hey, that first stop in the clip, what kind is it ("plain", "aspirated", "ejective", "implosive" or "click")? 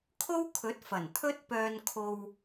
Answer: aspirated